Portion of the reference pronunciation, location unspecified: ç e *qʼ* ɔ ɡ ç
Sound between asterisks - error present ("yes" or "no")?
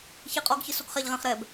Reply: no